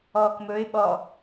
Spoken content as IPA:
ɔːkmɵɪ̯ ɓɔ

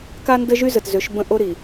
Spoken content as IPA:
ka˦ndə˦ʒy˦ zə˨tzø˨˦ʃbə̃˦ ʔo˦ɾi˨

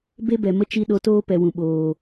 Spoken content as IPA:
be˦bɛ˨mə˦ t͡ʃi˦ɗo˧toː˦ pɛ˨wũ˨ɓoː˨

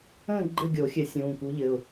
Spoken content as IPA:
ə̃ː˥˧ ɡ͡ǃɘ˥˧ɡʲo˨˩˦xʲɘ˨˩˦ sʲũː˩˧˩ku˧˥ʎɘ˩˧˩ʊ̯

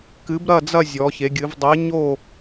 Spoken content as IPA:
kɨ˧˥bɾɐ˥˧d͡zɐ˥˧ zʲɔ˧˥çe˧˥ɡʲɨ˧˥v dˤe˧˥ɲo˥˧

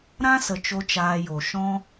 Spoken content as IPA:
ɾã˦sə˨ t͡ʃo˦t͡ʃaː˧jo˨ ʃɔ̃˦

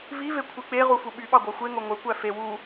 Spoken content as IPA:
vive kʷʰik͡peʁu fuɓyɓɑ ɡʷæxʷeŋo ŋʷekʷæ fe wu

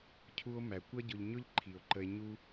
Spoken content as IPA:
cʰu˧o̯mæ˨kʷʌ˦ ɟʊ˧ʎɲʊ˦ʎǃʰi˨o̯ǃə˧e̯ ɲu˦

